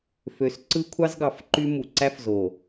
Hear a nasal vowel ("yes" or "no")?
no